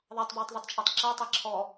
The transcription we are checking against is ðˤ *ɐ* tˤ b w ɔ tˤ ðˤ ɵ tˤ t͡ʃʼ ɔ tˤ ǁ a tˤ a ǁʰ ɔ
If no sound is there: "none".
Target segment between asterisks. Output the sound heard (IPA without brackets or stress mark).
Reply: ɑ